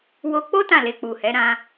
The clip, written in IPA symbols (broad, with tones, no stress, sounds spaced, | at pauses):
w o˧ k͡p o˦ t ã˦˨ l e˧ k͡p u˨ h ɛ˨˦ ɾ ã˧